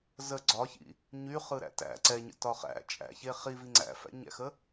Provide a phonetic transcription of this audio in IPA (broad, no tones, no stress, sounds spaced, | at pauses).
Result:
z ə ɡ͡ǀ ɒ ç ḭ | ɲ y χ ɯ ɾ æ̰ t æ̰ ǀ ɛ ɲ ə̰ t ɒ χ æ̰ t͡ʃʼ æ̰ ç e χ i v i ŋ͡ǀ æ̰ f æ̰ ɲ æ̰ x ə